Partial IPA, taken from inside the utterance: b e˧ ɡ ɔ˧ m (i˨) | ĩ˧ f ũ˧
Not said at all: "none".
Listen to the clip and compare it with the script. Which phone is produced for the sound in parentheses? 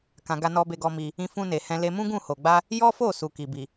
i˧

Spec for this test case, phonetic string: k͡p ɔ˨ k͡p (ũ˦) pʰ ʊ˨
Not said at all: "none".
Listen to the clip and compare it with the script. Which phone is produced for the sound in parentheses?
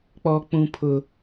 ũ˨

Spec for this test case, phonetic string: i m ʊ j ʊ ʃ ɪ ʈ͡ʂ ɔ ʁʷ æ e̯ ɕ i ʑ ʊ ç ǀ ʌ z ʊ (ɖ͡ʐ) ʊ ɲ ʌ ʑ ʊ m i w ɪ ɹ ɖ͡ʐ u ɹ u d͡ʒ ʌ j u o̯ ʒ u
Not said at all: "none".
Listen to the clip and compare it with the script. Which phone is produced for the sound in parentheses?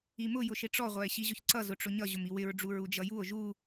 ʈ͡ʂ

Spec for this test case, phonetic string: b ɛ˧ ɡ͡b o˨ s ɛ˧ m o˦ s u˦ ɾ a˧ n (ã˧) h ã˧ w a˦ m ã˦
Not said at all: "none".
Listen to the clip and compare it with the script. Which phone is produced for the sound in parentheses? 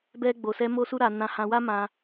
ã˧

